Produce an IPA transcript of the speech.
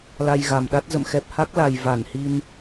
la˧jɣa˨˩mɗa˦˥t̚ zə̰˧˨mxɛ˨˩p̚ha˦˥k̚la˨˩j va˧˩nhi˧n

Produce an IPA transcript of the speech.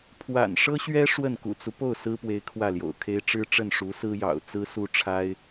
pʰwa̰˨˩nʂɤ˥ɕɥɛ˥ ʂwə˥˩nkṵ˨˩t͡su˦ po˥˩ʊ̯ sɹ̩˥pwe˧˥ɪ̯ kʰwä˥˩ljo̰˨˩ʊ̯kʰe˥ɪ̯ ʈ͡ʂɻ̩˥ʈ͡ʂə˥˩n ʂu˧˥sɹ̩˥jɑ̰˨˩ʊ̯ t͡sɹ̩˥su˥ʈ͡ʂʰa˥ɪ̯

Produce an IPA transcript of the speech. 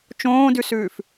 t͡ʃõːdʉsʉːf

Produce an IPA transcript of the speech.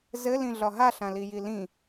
zɘlĩɮɒ ɦaɬãliji lĩ

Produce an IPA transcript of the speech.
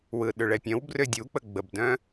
wɯɗʏɭɛpʲœ̃w brʏdʲuk͡pə ɡ͡bəbdœ̃

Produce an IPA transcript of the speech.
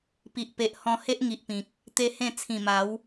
pi˨ʔpe˨ʔ hɔ̃˧he˦ʔ ŋi˨ʔpĩ˨k̚ | t̪e˦hẽ˥˧ t͡sʰĩ˨˩ma˨˦w

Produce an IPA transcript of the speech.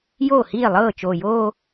joː˥˩hiː˥˩lˠɤː˥˩ t͡ʃoː˨˩joː˥˧

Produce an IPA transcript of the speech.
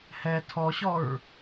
hɛ tʰɔɕɔɹ

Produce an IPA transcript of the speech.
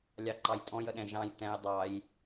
lʲɑǃɑjtʼɔ̃j əɗɛ̃ʒɑ̃j tɛ̃j dˤɑj

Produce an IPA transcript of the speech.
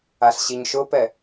aɬɕiɲʃʊpɛ

